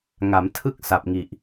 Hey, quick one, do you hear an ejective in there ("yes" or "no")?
no